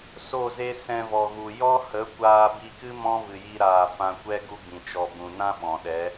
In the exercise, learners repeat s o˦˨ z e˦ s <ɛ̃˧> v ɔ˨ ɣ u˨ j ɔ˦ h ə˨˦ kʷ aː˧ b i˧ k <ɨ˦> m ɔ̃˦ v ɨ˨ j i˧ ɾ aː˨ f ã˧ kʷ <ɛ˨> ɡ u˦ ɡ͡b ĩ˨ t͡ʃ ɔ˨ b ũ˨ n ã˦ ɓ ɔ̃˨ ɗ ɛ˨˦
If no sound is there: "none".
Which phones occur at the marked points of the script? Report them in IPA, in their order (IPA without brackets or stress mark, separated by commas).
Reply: ɛ̃˧, ɨ˦, ɛ˦